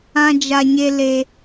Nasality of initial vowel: nasal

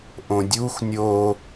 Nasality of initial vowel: nasal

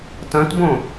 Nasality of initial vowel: nasal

